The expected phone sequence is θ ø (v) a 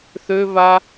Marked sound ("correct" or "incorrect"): correct